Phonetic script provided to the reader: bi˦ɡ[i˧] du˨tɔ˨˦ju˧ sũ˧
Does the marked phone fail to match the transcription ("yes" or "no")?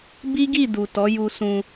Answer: yes